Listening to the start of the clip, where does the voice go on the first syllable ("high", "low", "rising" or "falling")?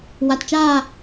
low